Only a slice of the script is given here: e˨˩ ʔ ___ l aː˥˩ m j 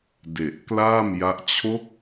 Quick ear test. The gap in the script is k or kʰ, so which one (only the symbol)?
k